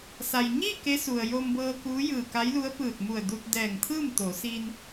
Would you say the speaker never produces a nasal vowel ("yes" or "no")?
yes